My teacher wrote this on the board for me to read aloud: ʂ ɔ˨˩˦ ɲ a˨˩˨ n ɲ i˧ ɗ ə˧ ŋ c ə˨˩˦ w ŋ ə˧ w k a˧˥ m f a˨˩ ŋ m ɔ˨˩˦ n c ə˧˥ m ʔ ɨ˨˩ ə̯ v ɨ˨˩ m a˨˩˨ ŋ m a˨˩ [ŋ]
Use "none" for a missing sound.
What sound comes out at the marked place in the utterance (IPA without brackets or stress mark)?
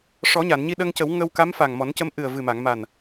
n